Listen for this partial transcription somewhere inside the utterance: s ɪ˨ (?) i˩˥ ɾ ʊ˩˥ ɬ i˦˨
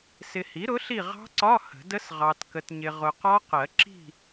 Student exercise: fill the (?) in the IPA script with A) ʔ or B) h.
B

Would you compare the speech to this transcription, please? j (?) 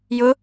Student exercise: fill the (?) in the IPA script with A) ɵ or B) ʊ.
B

